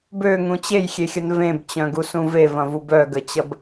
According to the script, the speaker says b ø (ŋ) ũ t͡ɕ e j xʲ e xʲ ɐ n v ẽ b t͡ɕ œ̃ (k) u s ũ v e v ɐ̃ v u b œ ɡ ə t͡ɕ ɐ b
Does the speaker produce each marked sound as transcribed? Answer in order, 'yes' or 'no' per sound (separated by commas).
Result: yes, no